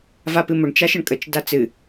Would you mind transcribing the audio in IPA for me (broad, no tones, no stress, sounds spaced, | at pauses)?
v a p ɨ m ʊ ɳ t͡ʃ a ʃ ə ɳ kʼ ə t͡ʃ d a t͡s ɨ